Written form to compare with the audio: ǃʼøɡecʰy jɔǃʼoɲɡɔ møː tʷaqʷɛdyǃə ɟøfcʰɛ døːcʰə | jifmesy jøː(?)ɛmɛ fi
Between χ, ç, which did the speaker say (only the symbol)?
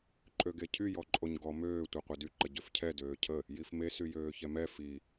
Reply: ç